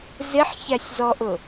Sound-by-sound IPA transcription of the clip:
z ɪ ħ ç æ sʲ z ɔ ʔ ʊ

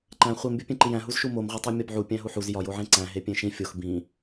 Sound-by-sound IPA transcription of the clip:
ǃ æ̃ χʷ i m bʲ ɒ pʲ ẽ ǃ i j æ̃ ɦ u z ʃ u m o m ʁʷ e tˤ e mʲ ɒ b ʕ u pʲ æ̃ ɦ u ħ u z j ɒ j o ʕ ẽ ǀ æ̃ ɦ e pʲ ẽ ʃ ĩ fʲ o x b ĩ

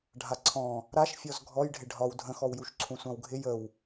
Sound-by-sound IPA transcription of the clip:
ɖʱ a ǀʰ ɔ̃ | ɾ a ʃ fʲ ɔ z ɡʱ ɔ j ɖʱ ɪ ɖʱ ɒ w dʱ ə̃ x ɔ w j u ʃ ǀʰ ũ sʷ ã w ɡʱ ɪ j ə w

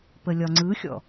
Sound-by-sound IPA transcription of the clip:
p ə lʲ ɒ ŋ͡ǀ ɯ xʲ ɔ̰

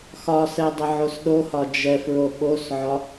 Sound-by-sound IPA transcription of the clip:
x ɒ s ɛ dˤ ə ʕ o s ɗ o h ɒ d͡ʒ ɛ f ɹ o ɓ o s ʕ ɒ

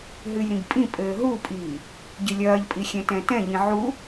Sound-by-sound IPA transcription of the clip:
ɦ ɨ j ɾ ĩ ɡ pʼ ĩ pʼ ɘː ɦ u pʼ iː | ɟ ɨ lʲ ɐː ʎ pʼ i xʲ ɛ̃ t ɛ̃ t ɛ̃ ʎ ĩ ʕ u

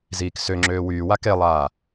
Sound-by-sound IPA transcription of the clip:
z iː k s ø ŋ͡ǁ øː w yː w a k e lˠ aː

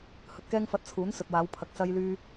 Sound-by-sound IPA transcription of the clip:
h ɵ˨ t̚ k ɛː˥ ŋ f ɐ˧ t̚ t͡sʰ uː˨˥ n s ɵ˨ t̚ w aː˨˧ w pʰ ɐ˨ k̚ s ɐ˧ j l yː˧

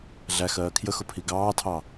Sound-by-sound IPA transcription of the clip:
ɮ æ x ɜː kʰ j ə x ʊ pʰ i ɡ ɑː tʰ ɑ

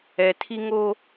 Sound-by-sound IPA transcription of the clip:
ɛ˨ tʰ i˦ ŋ o˦

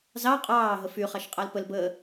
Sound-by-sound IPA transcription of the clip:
z ɑ qʼ ɑː ɦ ə f y χ ɑ ʃ qʼ ɑ l p ə l b əː

